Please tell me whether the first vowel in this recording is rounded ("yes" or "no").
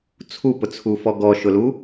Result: yes